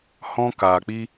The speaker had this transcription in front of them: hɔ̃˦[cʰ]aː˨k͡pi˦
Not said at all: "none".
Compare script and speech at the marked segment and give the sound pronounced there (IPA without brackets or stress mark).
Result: k